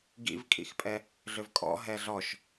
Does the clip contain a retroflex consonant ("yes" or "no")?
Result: no